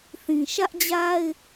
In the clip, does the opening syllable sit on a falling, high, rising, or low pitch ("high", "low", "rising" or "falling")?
low